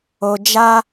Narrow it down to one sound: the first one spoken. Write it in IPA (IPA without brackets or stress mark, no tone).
o